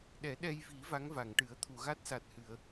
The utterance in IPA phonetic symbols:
ɗɛ˨˩˦ɗɛ˧jvi˨˩˦ va˧˥ŋva˨˩˨ŋʈɨ˨˩˦ə̯ t̪ʰu˨˩˨ɣa˦˥t̚sa˨˩t̚hɨ˨˩˨ə̯

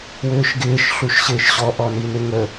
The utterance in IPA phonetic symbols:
wʏːʃɡɪːʃ ɬuʃɕɪːʃɕɔ ʔɔninɪŋə

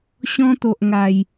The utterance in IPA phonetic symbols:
ɕɔ̃˦t̪o˨ʔ ŋa˨˩j

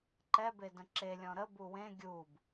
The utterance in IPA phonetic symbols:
ǃɛbedə̃ ǁelʲɔ̃ ɾəbu wẽ ɡʲub

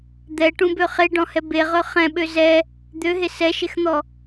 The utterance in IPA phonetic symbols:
d̪ɛʈũbø χeɖɔ̃hɛ beʁɵ χɛ̃ɓø zɛ | d̪øɦe sɛʃexn̪ɔ

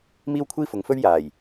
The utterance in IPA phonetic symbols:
miː˥wkʷʰiː˥fʊ˨˧ŋfɵ˥ɥ jaː˨˩j

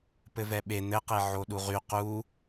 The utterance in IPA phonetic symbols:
pɘvɛɓe n̪ɘqe ʕoɗuʁy qu

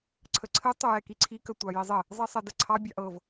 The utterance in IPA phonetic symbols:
ǀʰəǀʰɘ tˤʊjɛkiǀʰi kətʷɑjizˤɘ | zˤisˤɛdəǀʰɑ bʲɑʔɤv

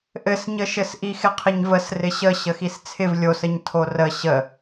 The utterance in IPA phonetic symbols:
ʔɘsɲəʃɘs ʔixɪqʰɪɲvəs rɪɕə ɕəxist͡sʰɪv lʲosəɲ tʰorə ɕə

